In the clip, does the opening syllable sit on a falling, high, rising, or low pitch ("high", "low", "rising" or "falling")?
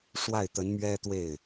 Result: falling